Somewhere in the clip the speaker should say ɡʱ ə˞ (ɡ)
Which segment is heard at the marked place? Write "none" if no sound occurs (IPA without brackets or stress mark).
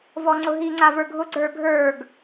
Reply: ɡ